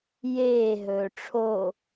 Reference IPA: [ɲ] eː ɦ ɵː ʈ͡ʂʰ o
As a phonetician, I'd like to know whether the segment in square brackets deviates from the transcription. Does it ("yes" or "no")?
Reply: yes